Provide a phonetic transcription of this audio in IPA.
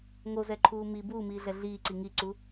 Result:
ŋ o z ɛ ǃʰ uː m i b uː m iː ɮ ɛ ɮ iː ǀ i ŋ i ǀ u

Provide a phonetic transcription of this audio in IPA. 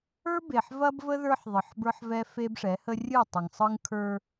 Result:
ə˞˦ b e˨ ħ v ɐ˦ b v ə˦ ð ə˞˦ ħ ðˤ ɯ˨ ħ b ə˞˦ ħ v ɛ˦ f e˦ b ʂ ɛ˨˦ h ə˦ rʲ ɯ˦˨ tˤ ə˨ ŋ sˤ ɯ˦ ŋ kʰ ə˞˦

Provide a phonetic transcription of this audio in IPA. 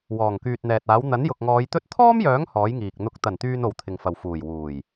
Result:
w ɔː˨˩ ŋ k yː˨ t̚ n̪ ɛː˨ t̚ aː˨˥ w n̪ ɐ˨˥ n j ʊ˨ k̚ ŋ ɔː˨˧ j t̪ ɵ˥ t̚ t̪ʰ ɔː˥ m j œː˨˥ ŋ h ɔː˨˥ j ŋ iː˨ k̚ n̪ ʊ˨˥ k̚ t̪ ɐ˨˩ n t̪ yː˨ n o˨ w t̪ʰ ɪ˨ ŋ f ɐ˨ w f uː˨˩ j w uː˨˩ j

